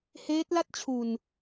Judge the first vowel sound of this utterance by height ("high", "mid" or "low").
mid